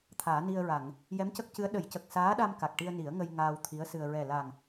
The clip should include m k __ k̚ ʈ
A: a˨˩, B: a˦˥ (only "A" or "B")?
A